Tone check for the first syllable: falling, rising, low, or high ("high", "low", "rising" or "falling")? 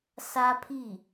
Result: high